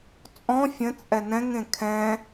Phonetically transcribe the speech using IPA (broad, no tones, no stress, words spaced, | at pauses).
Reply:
t͡sʼɔ̃ fʲə̃t͡sʼɛ nɛ̃ŋẽ kʰɛ̃